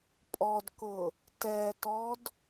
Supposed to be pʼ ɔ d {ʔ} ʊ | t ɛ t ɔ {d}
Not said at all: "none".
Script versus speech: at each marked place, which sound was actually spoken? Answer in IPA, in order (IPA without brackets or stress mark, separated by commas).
k, d